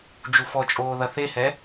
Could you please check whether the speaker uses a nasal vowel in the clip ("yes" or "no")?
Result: no